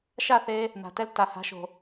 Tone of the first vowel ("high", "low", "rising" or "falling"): falling